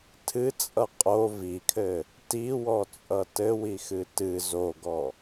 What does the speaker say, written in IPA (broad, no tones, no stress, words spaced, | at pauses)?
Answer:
tʰɨt͡sʼʌ qʼo vikʰɘ | tiwɔt͡sʼʌ tɘwixɨ tɨ zoɡɔ